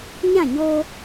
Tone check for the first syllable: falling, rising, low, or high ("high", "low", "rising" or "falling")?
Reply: falling